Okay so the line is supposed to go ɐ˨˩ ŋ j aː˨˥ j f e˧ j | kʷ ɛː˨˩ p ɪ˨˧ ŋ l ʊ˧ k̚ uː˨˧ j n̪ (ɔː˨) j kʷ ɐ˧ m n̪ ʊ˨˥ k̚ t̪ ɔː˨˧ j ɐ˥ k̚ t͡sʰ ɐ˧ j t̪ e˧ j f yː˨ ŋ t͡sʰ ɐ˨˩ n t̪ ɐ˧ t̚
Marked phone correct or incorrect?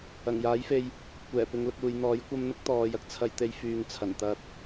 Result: incorrect